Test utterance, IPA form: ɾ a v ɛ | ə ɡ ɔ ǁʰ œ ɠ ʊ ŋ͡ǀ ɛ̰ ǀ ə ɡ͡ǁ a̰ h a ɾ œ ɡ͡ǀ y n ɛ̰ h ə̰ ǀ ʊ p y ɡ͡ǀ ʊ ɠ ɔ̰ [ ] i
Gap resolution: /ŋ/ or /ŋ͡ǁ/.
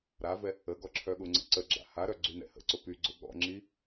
ŋ͡ǁ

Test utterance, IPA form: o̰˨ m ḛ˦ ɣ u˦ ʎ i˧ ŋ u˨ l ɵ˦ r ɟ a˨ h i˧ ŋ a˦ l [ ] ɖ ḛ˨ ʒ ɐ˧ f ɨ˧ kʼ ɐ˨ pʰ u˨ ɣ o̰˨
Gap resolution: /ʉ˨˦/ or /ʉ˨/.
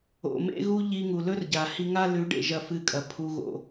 ʉ˨˦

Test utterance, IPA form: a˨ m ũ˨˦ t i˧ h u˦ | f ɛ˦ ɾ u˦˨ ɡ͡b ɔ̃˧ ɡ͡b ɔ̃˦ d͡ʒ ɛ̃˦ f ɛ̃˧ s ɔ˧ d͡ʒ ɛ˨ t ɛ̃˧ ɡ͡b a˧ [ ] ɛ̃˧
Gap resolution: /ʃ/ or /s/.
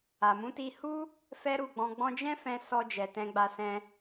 s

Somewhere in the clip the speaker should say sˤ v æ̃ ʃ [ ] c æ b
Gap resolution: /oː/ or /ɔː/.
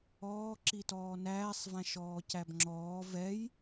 ɔː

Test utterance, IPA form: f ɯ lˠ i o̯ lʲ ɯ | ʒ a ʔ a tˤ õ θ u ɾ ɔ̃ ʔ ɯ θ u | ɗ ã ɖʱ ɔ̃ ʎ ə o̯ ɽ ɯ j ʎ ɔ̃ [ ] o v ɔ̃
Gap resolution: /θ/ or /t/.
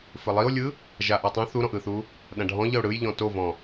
t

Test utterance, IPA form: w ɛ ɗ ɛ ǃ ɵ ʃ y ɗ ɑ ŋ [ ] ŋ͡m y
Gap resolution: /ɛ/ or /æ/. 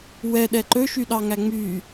æ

